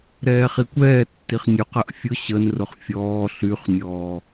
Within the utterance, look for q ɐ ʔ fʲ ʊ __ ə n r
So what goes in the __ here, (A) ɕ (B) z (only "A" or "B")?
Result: A